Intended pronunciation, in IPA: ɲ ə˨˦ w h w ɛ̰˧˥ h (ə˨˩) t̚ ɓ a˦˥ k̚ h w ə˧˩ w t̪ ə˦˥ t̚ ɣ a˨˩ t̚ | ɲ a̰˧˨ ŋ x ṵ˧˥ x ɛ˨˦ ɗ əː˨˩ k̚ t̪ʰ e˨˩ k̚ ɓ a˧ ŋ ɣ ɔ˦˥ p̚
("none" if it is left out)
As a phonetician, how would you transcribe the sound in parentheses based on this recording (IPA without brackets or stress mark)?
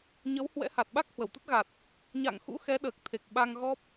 a˨˩